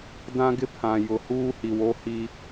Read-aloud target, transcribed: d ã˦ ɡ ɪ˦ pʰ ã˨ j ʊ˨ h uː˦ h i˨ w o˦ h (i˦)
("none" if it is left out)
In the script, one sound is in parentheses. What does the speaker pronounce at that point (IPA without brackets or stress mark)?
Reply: i˦